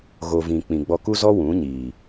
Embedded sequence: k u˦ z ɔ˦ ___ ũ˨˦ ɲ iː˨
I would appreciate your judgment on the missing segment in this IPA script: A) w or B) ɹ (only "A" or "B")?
A